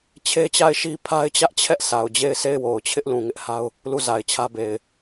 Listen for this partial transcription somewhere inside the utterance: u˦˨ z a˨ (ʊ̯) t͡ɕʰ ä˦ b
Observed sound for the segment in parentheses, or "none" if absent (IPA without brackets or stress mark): ɪ̯